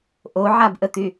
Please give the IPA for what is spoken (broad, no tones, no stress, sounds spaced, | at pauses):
ʔ o ʕ a b ʔ ə t̪ y